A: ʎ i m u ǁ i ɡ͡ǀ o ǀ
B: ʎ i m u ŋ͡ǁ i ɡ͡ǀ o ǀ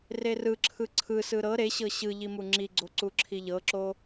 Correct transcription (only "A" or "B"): B